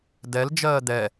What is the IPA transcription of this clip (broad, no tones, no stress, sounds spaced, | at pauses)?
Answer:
d ɛ l d͡ʒ ɜː d̪ ɛ